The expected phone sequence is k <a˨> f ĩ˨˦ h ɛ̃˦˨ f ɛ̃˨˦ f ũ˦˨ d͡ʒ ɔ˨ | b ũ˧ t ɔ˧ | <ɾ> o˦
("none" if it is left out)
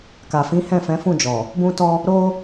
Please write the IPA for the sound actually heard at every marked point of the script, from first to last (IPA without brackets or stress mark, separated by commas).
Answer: a˨, ɾ